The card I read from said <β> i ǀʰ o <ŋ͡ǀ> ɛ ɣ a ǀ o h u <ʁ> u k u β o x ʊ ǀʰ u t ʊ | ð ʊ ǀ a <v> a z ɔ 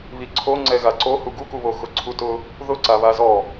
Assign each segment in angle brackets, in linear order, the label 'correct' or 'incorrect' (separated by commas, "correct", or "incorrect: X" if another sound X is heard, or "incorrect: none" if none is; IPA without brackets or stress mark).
correct, correct, incorrect: ɡ, incorrect: β